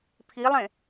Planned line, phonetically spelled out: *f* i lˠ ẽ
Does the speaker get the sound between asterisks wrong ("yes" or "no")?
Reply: yes